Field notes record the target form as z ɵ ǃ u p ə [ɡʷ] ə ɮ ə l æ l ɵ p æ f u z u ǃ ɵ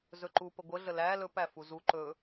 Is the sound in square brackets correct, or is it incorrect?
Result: correct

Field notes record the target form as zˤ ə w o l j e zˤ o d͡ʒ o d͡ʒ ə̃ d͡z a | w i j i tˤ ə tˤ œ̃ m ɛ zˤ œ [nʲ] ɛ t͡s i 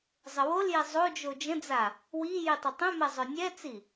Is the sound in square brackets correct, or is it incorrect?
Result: correct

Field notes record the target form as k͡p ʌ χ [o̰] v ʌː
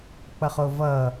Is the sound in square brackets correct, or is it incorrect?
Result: incorrect: o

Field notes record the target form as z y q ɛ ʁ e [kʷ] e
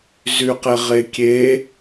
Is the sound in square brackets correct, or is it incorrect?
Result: incorrect: kʲ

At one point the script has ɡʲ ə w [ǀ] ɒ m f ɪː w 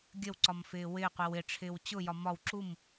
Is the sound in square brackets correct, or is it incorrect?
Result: correct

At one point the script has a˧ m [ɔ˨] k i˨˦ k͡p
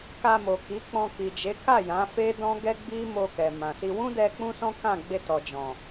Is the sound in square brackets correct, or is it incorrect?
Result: incorrect: o˨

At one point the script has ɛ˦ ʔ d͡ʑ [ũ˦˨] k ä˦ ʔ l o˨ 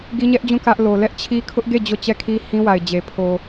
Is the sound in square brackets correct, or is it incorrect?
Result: correct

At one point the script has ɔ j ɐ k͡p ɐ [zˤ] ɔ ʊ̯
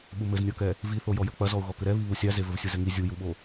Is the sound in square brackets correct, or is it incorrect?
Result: incorrect: z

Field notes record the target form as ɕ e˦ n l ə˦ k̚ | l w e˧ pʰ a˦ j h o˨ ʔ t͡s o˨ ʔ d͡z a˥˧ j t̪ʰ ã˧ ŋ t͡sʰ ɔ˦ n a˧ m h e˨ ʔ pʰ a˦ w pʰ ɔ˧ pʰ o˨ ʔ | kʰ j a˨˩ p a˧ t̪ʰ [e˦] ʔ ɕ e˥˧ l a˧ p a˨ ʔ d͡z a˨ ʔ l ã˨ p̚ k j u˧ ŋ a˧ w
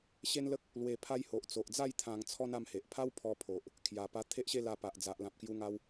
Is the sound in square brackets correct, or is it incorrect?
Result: correct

